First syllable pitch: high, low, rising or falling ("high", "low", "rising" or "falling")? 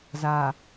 low